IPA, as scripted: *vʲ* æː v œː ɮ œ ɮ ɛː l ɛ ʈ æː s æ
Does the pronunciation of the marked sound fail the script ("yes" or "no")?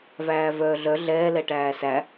yes